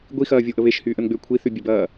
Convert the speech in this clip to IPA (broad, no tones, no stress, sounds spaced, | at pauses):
ɡʷ i x ɐː vʲ o ʔ ə β e ʃ h yː ʔ ə n ɡ͡b ʏː kʷʰ i θ y bʲ ɛ b ɐː